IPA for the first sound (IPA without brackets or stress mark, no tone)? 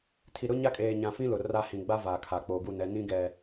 tʰ